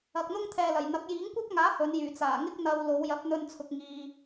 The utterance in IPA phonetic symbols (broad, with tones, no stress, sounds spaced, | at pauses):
ɐ˨ k̚ n̪ ʊ˥ ŋ t̪ʰ ɛː˨ l ɐ˨˩ j n̪ ɐ˨˥ k̚ j iː˨˥ ŋ kʷ ɐ˥ p̚ ŋ aː˨˥ h ɵ˨˧ n j yː˨˩ t͡s aː˨˩ ŋ ɪ˥ k̚ n̪ ɐ˧ w l o˨˧ w j ɐ˨˥ p̚ n̪ ɵ˧ n t͡sʰ ʊ˧ k̚ ŋ iː˧